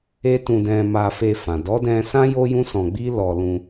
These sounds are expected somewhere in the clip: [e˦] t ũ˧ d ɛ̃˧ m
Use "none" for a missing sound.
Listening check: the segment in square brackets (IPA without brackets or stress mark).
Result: e˦